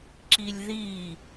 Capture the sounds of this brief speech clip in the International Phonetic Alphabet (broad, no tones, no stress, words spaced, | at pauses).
ǁilʲði